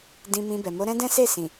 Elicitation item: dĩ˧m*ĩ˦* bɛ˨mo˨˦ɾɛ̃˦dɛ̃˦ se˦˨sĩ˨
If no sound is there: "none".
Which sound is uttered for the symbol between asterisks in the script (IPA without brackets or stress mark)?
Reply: ĩ˧